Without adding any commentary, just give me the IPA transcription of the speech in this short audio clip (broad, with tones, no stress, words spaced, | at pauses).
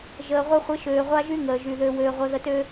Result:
ʒəː˨ʁʷə˦χʷɪ˦ ʃøː˨ʁʷa˦ʒy˦ ŋəː˨ʒy˨ðø˦ wøː˦ʁʷœ˦ðə˦tø˦